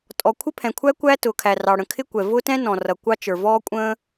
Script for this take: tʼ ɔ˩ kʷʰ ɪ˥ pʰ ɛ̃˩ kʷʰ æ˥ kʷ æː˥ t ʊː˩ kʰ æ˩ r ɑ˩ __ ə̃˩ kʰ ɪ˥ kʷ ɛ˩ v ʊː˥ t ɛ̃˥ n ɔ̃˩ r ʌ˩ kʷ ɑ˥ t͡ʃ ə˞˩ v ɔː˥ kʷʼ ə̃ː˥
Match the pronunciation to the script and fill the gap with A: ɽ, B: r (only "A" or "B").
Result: A